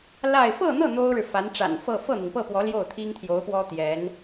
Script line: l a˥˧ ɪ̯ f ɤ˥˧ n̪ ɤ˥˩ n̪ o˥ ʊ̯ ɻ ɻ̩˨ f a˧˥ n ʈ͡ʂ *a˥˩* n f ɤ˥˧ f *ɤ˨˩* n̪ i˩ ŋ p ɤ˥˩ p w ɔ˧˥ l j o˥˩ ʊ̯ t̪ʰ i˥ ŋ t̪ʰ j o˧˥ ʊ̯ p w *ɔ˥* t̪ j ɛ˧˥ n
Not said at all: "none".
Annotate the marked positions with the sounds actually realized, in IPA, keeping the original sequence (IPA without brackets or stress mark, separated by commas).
a̰˨˩, ɤ˥˩, ɔ˥